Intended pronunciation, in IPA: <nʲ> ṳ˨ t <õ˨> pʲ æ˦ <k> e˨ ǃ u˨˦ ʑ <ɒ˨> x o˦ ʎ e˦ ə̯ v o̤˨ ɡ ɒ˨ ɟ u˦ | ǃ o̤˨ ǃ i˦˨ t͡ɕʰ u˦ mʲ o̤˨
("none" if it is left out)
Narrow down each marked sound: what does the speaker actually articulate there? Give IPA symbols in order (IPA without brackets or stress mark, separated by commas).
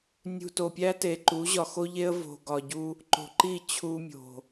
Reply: nʲ, o˨, t, ɒ˨